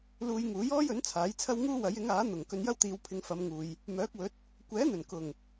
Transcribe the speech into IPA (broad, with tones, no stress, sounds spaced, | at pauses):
l uː˧ j ŋ uː˨˥ j ɔː˥ j ɵ˨˥ n t͡sʰ aː˨˥ j t͡sʰ ɐ˥ w ŋ uː˥ w ɐ˨˥ j ɪ˨˥ ŋ aː˨˥ n̪ ʊ˨˩ ŋ k ɵ˧ n j ɐ˥ w t̪ iː˨˧ w pʰ ɪ˧ ŋ f ɐ˨˧ m ŋ uː˨ j | m œː˨˥ k̚ w ɵ˨˥ t̚ | kʷ ɛː˨˥ n̪ ɵ˨˩ n k ʊ˨˩ ŋ